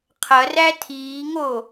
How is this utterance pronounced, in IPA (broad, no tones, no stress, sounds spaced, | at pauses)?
qʰ ɐ r æ tʰ iː ŋ o